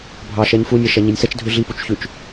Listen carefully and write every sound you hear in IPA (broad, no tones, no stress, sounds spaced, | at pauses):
bʱ ɑ ʃ ɛ ɲ f u nʲ ɛ ʃ ɛ ɲ i nʲ s ɛ t͡ʃ dʱ ʉ ɮ i p u t͡ʃ ç ʉ t͡ʃ